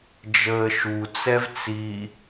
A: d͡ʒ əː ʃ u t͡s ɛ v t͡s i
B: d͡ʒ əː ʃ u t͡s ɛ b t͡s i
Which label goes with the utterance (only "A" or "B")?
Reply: A